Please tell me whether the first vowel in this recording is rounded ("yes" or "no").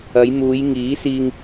no